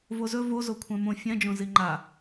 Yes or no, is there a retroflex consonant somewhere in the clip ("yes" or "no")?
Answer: no